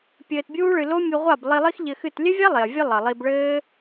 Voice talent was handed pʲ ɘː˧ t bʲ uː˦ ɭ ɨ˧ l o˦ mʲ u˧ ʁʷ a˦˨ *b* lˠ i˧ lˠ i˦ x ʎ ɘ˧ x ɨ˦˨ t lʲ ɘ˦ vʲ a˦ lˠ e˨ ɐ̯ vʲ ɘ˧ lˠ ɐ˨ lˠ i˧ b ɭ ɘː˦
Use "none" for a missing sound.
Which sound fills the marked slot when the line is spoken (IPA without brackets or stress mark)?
b